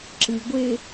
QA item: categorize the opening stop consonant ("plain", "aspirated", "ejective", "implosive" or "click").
click